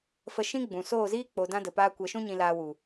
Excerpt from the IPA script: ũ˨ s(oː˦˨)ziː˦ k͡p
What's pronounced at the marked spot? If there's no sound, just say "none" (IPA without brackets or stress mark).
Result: oː˦˨